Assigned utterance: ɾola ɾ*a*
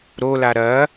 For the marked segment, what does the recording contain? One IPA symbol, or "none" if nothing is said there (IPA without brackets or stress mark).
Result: ɐ